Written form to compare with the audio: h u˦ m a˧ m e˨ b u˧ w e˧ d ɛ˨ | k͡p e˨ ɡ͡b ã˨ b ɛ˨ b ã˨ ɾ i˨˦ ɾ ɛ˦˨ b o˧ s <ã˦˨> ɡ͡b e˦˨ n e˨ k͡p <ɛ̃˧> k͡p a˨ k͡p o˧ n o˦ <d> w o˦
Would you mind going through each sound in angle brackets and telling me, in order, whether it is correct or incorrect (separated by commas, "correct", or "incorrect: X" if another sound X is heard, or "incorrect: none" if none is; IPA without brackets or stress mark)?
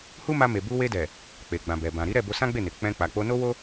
incorrect: ã˦, correct, incorrect: none